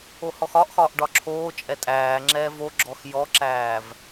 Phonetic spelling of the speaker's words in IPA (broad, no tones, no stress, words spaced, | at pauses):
ohɔxɒʔxɒːʔ ɖɒǁʰoːt͡ʃʼɛ tʼæːŋ͡ǁɛː voɡ͡ǁɔx jɔǁæːv